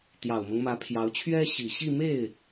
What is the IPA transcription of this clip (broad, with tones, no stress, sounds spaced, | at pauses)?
t̪ j ɑ˨˩ ʊ̯ m ɤ˦ ŋ m ä˧˥ pʰ j ɑ˧˥ ʊ̯ t͡ɕʰ ɥ ɛ˥ ɕ i˨˩ ɕ i˥˧ m e˥˩ ɪ̯